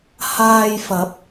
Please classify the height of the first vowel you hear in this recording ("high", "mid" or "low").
low